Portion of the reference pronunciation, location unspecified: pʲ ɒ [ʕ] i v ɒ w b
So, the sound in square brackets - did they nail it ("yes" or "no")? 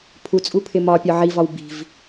yes